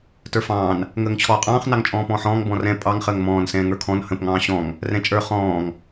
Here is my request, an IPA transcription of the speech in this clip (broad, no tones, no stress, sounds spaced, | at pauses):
t ə˞ f ɑ̃ː n | ŋ əː ŋ t͡ɕʰ ɔː qʼ ɑ̃ː χ n ɑ ŋ t͡ʃʼ ɔ̃ː p ɔ̃ː ħ ɔ̃ː ŋ b ɔ̃ r ɛ̃ pʼ ɑ ŋ χ əː ŋ m ɔ̃ː n s ɛ̃ː ŋ ə˞ kʰ ɔ̃ n h ə̃ p ŋ ɑ̃ː ɕ ɔ̃ ŋ | r ɛ̃ t͡ʃʼ ə˞ χ ɔ̃ː ŋ